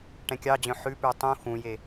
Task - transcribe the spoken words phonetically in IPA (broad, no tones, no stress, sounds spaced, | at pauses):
ʈ ɛ̃ kʲ ɑ d͡ʑ œ̃ ħ ʉ p ʉ tˤ ũ x ũ j e